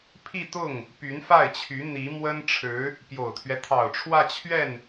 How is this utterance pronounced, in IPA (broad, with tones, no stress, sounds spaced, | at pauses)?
pʰ i˥˧ t̪ ʊ˥˩ ŋ | p y˧˥ n f a˥˩ ɪ̯ t͡ɕʰ y˧˥ n̪ i˧˥ m w ə˥ n ʈ͡ʂʰ ɻ̩˧˥ | p j o˨˩ ʊ̯ t̪ʰ ɥ ɛ˦ t̪ʰ ɑ˨˩ ʊ̯ ʈ͡ʂʰ w ä˥˧ t͡ɕʰ ɥ ɛ˥˩ n